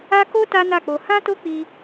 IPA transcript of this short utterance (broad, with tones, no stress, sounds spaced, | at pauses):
a˦ k o˦ t a˦ n a˦˨ k͡p o˧ h ã˦ t o˦ k͡p i˧